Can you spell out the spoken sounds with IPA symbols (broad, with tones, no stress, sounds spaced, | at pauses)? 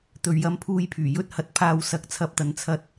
t̪ ɵ˨˧ ɥ j ɐ˧ m pʰ uː˧ j pʰ yː˨˩ j ɵ˥ t̚ h ɐ˨˥ t̚ pʰ aː˧ w s ɐ˨˥ k̚ t͡sʰ ɐ˧ p̚ t̪ ɐ˨ n t͡sʰ ɐ˧ t̚